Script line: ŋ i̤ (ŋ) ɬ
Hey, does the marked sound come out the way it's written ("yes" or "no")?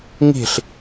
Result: no